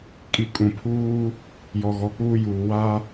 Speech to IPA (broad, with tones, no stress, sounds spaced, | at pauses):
kʼ i˨ kʼ ũ˨ pʰ uː˦ | j ɔ˨ ɣ ɔ˨ k͡p uː˦ j uː˨ w a˦